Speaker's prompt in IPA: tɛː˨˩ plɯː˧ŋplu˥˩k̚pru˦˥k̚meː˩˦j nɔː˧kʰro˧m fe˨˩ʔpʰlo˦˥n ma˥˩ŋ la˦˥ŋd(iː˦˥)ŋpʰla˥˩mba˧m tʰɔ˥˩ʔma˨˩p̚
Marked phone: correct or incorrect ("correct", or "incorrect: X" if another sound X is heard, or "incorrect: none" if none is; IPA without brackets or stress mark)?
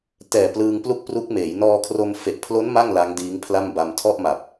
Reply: correct